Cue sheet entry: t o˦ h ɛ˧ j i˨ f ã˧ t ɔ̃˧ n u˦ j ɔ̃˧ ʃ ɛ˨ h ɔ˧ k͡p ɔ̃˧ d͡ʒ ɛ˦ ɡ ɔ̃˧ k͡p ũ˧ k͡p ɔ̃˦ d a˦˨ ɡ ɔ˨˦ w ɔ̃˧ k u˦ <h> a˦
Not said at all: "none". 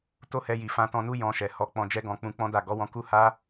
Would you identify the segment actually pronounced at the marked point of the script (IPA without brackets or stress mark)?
h